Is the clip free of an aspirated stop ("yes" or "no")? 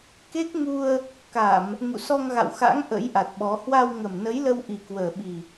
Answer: yes